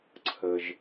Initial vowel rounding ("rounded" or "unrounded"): unrounded